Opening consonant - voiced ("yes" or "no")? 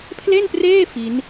no